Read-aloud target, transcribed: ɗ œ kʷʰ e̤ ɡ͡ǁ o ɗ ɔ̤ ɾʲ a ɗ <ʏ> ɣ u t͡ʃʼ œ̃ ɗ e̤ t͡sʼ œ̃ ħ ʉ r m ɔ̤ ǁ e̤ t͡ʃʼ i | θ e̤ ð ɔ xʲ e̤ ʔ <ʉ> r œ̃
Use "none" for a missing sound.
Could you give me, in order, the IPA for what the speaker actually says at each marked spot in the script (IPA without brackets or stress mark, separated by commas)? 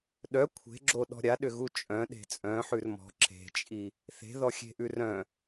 ʏ, ʉ